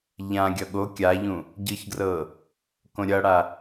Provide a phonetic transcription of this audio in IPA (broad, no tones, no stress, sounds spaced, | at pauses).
ʎ ã ɡʲ ʌ ɠ o kʲ a ʎ ũ | ɟ ɯ ç ɡ r ɤ | k õ ɾʲ ʌ ɽ a